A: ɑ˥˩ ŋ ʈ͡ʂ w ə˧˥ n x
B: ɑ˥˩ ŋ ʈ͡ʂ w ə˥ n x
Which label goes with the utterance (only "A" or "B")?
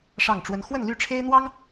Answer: B